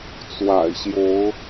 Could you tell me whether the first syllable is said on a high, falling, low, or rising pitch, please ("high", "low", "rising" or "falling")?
low